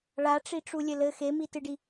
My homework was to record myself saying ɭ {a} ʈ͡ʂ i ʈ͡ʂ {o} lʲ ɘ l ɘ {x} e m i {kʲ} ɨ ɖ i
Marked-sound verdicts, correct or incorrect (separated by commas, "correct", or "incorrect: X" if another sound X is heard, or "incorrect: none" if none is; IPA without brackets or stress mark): correct, incorrect: u, correct, incorrect: t